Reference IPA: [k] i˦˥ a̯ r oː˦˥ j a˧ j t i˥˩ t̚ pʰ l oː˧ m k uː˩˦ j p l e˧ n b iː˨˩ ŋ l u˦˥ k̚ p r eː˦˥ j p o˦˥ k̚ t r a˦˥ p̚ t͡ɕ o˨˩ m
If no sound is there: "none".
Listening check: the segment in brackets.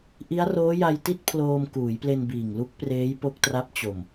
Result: ʔ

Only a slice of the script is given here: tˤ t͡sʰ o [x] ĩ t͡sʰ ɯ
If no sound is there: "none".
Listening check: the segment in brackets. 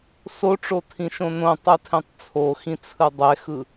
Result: x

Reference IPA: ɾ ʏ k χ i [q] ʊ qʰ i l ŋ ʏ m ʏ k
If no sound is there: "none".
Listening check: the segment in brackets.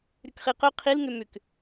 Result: q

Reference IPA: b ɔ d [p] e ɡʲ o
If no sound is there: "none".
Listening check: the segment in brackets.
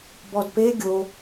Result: p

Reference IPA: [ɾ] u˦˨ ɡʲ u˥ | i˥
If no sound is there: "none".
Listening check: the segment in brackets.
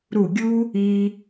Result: ɾ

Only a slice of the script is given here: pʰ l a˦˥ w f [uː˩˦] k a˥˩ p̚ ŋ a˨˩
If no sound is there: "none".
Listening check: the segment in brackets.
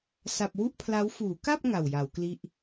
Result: uː˩˦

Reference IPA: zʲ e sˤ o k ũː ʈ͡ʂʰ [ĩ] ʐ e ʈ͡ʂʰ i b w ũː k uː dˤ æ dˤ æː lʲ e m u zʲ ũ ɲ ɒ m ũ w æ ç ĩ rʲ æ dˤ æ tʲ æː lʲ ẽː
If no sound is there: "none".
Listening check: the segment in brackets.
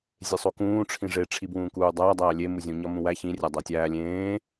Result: ĩ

